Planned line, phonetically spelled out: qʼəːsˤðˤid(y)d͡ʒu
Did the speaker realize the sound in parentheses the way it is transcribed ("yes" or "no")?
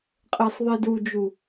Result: no